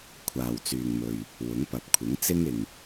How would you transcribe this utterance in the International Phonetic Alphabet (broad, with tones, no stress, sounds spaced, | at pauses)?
kʷʰ aː˨ w t͡s yː˨ ŋ m ɵ˨ ɥ | w ʊ˨˥ ŋ p ɐ˨ p̚ kʷʰ ɪ˨˥ ŋ t͡s ɪ˥ ŋ ɪ˨ ŋ